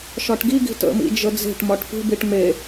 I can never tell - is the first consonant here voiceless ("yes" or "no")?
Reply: yes